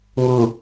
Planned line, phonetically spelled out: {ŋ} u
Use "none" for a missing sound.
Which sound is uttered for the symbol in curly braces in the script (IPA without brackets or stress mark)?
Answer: ŋ